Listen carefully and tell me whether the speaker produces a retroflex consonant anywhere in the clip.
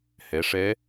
yes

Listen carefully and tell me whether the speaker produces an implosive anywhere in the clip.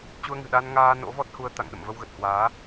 yes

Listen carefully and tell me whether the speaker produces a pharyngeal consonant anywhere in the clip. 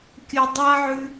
yes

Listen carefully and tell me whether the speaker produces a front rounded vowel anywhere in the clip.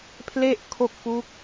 no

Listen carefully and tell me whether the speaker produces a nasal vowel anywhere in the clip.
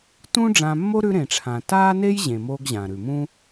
yes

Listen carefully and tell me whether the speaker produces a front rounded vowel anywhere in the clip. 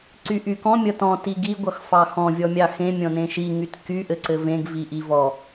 yes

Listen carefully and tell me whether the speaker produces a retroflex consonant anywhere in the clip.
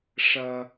yes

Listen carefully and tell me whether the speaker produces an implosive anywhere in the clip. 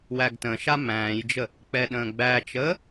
yes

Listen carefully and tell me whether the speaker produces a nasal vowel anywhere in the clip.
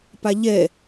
no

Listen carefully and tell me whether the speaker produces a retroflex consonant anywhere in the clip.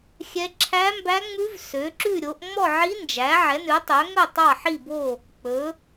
no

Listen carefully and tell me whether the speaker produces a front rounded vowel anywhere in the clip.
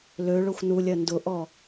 yes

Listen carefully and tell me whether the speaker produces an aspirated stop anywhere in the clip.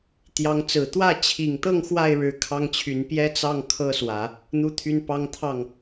yes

